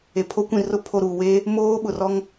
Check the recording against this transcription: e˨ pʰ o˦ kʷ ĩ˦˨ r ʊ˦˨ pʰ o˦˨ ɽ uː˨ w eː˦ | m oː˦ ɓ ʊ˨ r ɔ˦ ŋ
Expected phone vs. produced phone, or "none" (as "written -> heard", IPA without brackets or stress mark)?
ɽ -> ɾ